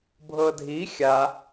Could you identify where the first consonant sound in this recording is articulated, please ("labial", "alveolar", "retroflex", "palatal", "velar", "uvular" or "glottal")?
labial